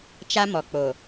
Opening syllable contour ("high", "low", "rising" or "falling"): high